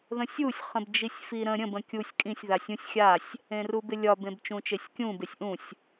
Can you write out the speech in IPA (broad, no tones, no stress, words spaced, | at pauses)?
ðə̃sʲusʲ χə̃bd͡ʒisʲfiɾə̃ ɾʲə̃ bə̃kʲusʲ kʼĩsʲ ðasʲũsʲ xʲasʲ | ẽrubɪlʲɒb ẽbt͡ʃũt͡ʃesʲkʲũ besʲʔũsʲ